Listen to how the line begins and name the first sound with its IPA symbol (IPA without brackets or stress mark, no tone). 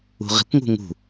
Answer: ṳ